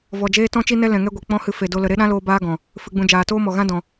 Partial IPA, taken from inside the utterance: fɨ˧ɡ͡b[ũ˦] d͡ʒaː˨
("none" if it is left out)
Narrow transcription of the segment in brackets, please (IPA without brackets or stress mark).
ũ˧